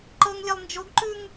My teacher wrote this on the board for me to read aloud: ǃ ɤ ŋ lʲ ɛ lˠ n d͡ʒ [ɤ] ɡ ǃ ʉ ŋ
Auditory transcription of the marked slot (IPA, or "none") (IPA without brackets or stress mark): o